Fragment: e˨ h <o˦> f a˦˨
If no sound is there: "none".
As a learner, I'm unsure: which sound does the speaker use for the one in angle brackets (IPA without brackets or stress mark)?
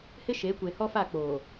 ɔ˦